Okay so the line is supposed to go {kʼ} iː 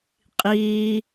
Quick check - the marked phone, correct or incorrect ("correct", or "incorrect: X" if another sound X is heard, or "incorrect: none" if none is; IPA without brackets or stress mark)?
incorrect: qʼ